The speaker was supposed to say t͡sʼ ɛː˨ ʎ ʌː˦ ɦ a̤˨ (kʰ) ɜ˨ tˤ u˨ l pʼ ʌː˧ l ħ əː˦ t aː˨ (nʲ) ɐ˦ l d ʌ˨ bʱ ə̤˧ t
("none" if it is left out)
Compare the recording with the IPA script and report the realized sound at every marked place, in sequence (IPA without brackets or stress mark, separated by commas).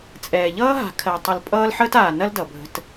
kʰ, n